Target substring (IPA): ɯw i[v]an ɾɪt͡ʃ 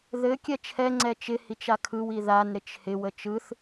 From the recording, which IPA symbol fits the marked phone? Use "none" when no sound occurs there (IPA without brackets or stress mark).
ð